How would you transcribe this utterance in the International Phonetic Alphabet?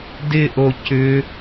dɪʔo cʏ

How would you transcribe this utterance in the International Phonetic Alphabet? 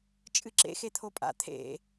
t͡ʃʼɨǁḛxe t̪ʰopʼa̰ t̪ʰḛ

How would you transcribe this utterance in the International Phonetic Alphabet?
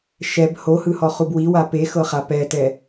ʃɛb hohɯhɔχub wiwa pexɤχa pɛtɛ

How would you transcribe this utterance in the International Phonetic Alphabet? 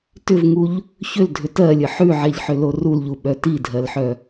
tʏvŋuʎ | çʏldʱʏ tɜlʲə ħʉʕɛʎħʏlo rulʎuɓœ tidʱɜlħœ

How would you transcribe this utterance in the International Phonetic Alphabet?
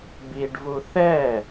biɖvu θɛ

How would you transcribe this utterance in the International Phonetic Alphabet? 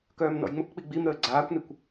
kœːmnɔ̰jŋ͡məkk͡pi ɡ͡bimɾəː ɡ͡ǀaːkʷnikʷ

